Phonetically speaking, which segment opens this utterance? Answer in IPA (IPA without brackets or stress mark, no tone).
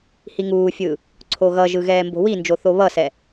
h